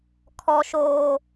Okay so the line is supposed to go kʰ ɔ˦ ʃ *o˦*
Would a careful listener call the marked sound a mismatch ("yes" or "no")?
yes